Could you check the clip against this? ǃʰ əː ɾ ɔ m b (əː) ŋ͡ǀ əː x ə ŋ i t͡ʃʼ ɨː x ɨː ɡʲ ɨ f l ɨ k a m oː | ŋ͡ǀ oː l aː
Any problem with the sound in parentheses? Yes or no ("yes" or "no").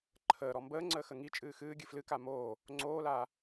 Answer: no